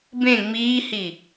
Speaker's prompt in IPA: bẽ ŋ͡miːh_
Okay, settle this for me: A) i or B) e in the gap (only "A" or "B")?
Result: A